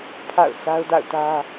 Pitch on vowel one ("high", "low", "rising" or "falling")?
falling